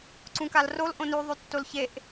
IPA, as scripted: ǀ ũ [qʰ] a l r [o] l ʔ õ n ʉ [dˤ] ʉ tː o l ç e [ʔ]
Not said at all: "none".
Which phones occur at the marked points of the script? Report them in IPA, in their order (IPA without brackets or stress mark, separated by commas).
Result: k, o, ðˤ, ʔ